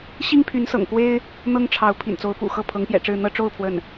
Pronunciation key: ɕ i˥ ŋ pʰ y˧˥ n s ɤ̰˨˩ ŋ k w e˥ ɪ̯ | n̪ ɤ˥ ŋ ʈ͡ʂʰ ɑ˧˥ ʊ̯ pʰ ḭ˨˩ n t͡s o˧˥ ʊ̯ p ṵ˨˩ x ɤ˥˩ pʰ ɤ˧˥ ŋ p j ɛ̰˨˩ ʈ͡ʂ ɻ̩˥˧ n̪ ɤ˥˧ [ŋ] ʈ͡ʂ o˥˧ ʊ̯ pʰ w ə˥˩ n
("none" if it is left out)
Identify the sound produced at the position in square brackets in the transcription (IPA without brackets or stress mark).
none